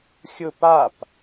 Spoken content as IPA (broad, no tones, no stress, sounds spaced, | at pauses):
xʲ ʊ p a p